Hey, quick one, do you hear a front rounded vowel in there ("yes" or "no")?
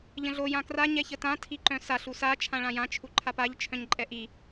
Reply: yes